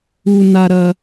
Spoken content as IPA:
u˧ n a˧ ɾ ɐ˧

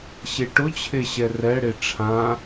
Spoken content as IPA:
ɕ e ʈ ʊ t͡ɕʰ e ɕ ɛ r ɛ ɽ e ʈ͡ʂʰ ã

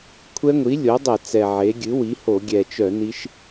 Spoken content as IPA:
kʷʰ ɛ˦˥ ŋʷ i˩˥ lʲ o˩˥ dˤ ɛ˧˩˧ t͡s ɛ˨˩ ʕ e˩˥ ɡʲ ɨ˩˥ w i˩˥ h o˧˩˧ ɡʲ ɛ˨˩ t͡ʃ œ˧˩˧ n i˦˥ ʃ

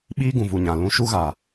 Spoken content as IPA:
ɓ iː˦ ɡ ũ˨ v u˨ ɲ ã˨ l ũ˧ ʃ u˦ ɣ a˨

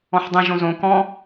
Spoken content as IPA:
ɔ̃ ħ dˤ ĩ ʒ õ z õ k ɔ̃

